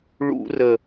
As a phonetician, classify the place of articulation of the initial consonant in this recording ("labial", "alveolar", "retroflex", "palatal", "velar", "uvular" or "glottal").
retroflex